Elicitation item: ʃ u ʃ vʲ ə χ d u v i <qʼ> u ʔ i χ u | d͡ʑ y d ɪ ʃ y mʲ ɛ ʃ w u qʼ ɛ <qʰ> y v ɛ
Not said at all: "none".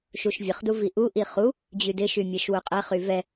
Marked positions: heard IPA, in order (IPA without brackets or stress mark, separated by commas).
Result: ʔ, χ